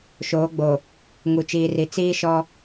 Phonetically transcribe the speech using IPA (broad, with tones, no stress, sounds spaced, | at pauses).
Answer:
ʃ oː˨˦ ɡ͡b o˨ | ŋ u˨ t͡ʃ iː˨ r i˨˦ t͡s iː˦ ʃ ɔ˦